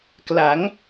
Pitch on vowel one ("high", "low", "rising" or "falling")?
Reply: rising